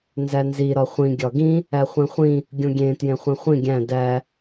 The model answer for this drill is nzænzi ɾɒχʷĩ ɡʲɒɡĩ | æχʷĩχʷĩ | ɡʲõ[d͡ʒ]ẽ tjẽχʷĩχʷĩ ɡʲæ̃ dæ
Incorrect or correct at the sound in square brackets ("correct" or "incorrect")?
incorrect